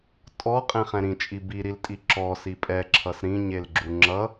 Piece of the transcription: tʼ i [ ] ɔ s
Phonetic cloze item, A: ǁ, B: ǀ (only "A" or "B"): A